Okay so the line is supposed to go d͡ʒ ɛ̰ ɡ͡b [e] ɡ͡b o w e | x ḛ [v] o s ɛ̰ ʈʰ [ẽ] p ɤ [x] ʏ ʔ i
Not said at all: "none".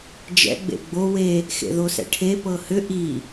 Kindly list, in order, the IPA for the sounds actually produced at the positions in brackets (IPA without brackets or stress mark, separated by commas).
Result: ḛ, ð, e, h